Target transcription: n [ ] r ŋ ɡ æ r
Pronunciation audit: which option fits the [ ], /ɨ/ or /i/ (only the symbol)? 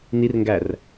i